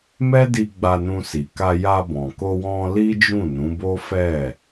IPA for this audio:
m ɛ˦ d i˧ ɡ͡b a˧ n ũ˧ s i˨ k a˧ j a˧ b ɔ̃˨ k o˧ w ɔ̃˧ l i˦ d͡ʒ ũ˦˨ n ũ˨˦ b o˦ f ɛ˦˨

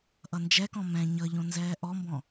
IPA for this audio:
ʔ ʌ n d͡ʒ ɛ k ɔ̃ m ɛ̃ ɲ ʌ ʎ õ n z ɛː ʔ ɔ m b ɔ̃

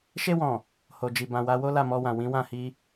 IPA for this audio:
ʃ e˧ w ɔ̃˨ | h o˨ d͡ʒ i˨ b ã˨ w a˨˦ w o˦ l a˦˨ m ɔ˧ w ã˨ w ĩ˨˦ w ã˦˨ h i˧

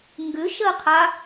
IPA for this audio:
ŋ ɡ ʏ ʃ ɜ qʰ a

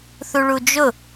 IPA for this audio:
θ u ɭ u d͡ʒ ʊ

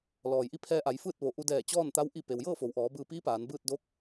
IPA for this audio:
l ɔː˩ j ʔ i˧ pʰ ɛː˧ ʔ a˩˧ j f ɯː˥˨ t̚ ʋ o˩ ʔ u˧ d ɛː˧˩ t͡ɕ ɔː˥˨ n t̪ a˧˥ w ʔ i˥˨ p e˩ w j ɤː˥˨ f o˩˧ w ʔ ɔː˩˧ b ɯː˧ p iː˧˥ p aː˩˧ n b ɯː˥˨ t̚ d o˧˥ k̚

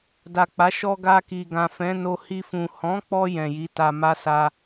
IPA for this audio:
d a˨ k͡p a˨˦ ʃ ɔ˧ ɡ a˧ k i˨ ɡ ã˨ f ɛ̃˨˦ n o˧ h i˧ f ũ˨ h ɔ̃˨˦ k͡p ɔ˧ j ɛ̃˨ j i˨˦ t a˧ m a˦ s a˦

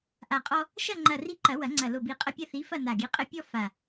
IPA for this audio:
ʔ a˨˩ qʼ ɔ˦ | ʃ ɐ˦˨ ŋ͡ǃ ɐ˨˩ r i˦ ǃ ɐ˨˩˦ w ɐ˨˩˦ ŋ͡ǀ ɐ˨˩ l o˨˩ b i˨˩ qʼ ɐ˦˨ pʲ ɐ˦˨ θ i˨˥ f ɐ˦˨ n a˨˩ ɡ i˨˥ qʼ ɘ˦ pʲ ɔ˦ f a˨˩

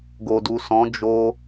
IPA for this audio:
ɡ o˨ d u˨ s ɔ̃˨˦ d͡ʒ o˧

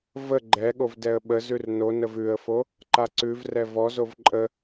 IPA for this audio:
v ə ɡ͡ǃ ɛ ɠ o v d ɛ ə̯ ɓ ə z ʉ r n o n ə v ʉ ə̯ f o | ǃ a ǀ ʉ v r ɛ v ɔ z o v ǃʼ ə

